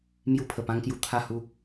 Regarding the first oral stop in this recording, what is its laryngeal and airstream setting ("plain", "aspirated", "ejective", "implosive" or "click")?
aspirated